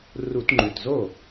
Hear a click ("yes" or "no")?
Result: yes